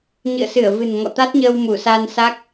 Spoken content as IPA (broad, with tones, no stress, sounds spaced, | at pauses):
ɲ ɨ̰˧˨ ə̯ s ɨ˧˩ ə̯ v ɨ̤˨˩ n ŋ ɔ̰˧˨ t̪ a˦˥ t̚ ɲ əː˧ w m u˧˩ s aː˧ n s a˦˥ k̚